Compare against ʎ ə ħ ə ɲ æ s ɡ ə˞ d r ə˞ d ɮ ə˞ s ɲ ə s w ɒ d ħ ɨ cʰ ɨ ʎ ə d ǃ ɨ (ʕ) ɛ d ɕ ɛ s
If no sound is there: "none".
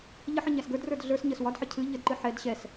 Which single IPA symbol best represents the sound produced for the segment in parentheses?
ħ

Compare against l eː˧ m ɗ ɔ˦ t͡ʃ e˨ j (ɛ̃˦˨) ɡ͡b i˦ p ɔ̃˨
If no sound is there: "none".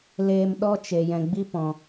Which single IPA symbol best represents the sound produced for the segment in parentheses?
ɛ̃˨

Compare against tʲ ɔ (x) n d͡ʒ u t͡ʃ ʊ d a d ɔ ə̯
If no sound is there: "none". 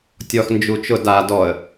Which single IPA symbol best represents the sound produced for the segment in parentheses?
x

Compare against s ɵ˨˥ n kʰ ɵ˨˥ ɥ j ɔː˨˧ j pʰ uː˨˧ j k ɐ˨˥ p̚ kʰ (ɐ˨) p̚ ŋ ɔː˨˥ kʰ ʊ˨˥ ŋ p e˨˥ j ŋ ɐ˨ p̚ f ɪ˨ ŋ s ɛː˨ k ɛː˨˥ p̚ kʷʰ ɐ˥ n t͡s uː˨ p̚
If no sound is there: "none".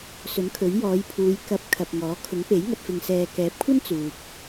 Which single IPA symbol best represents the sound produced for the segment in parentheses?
ɐ˨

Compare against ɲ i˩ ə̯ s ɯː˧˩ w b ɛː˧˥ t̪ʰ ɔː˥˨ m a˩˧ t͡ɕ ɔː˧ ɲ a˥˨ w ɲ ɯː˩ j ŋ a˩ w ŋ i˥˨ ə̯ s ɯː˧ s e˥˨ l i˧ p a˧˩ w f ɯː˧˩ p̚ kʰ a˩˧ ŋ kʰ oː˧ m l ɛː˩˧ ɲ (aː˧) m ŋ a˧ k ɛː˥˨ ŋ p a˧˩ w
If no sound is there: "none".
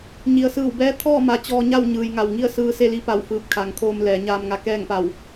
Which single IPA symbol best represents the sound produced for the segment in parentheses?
aː˧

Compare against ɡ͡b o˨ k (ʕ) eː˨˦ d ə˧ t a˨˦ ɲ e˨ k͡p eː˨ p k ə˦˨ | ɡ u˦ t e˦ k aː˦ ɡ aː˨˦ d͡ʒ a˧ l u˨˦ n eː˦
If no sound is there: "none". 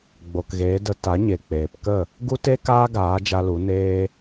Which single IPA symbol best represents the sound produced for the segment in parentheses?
ɣ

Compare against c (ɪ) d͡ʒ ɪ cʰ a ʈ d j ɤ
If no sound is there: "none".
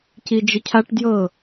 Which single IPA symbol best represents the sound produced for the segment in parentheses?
i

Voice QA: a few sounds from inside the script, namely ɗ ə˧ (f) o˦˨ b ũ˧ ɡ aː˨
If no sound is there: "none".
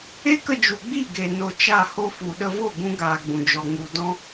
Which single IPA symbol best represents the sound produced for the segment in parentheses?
v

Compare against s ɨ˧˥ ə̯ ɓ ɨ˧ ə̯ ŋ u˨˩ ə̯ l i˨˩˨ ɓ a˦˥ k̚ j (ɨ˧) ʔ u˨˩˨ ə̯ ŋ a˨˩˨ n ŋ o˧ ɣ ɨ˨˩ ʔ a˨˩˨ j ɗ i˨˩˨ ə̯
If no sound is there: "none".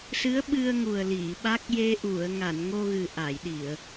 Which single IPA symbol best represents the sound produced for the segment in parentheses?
e˧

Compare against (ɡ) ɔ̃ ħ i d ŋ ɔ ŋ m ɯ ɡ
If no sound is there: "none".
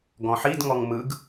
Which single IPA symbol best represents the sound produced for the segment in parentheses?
ɡ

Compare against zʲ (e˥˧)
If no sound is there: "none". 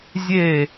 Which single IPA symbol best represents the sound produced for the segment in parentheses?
e˥˧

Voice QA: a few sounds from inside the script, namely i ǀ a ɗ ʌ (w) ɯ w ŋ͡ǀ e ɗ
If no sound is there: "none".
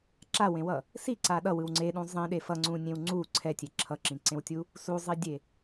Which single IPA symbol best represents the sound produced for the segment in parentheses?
w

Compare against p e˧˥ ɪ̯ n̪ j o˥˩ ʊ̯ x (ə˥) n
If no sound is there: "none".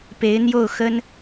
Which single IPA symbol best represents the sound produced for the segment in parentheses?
ə˥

